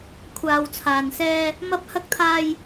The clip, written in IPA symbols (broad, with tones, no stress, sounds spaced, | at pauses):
kʷʰ aː˨ w t͡sʰ aː˨ n s ɛː˧ | m ɐ˨˥ p̚ h ɐ˨ k̚ t̪ʰ aː˨ j